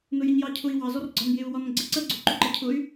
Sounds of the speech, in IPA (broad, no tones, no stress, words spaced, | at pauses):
nʊjɛɲjɑcʰʊi̯ wɑ zɔrɡ͡ǀɒn jɪu̯wɒnɡ͡ǀɪ ǀɜɡ͡ǀʊ ǃʊǃɜcʰʊy̯